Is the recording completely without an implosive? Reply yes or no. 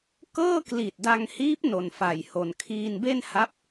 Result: yes